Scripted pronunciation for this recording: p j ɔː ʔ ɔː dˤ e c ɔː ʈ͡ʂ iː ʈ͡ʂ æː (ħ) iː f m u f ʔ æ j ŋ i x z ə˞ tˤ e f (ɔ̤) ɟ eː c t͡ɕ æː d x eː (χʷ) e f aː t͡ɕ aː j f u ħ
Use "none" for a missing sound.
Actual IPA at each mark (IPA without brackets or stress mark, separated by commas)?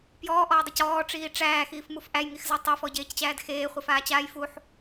x, ɔ, χʷ